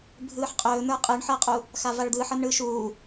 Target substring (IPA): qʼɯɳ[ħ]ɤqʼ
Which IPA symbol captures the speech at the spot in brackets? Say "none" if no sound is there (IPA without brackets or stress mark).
ħ